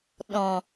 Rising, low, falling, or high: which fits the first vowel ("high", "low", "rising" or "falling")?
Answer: low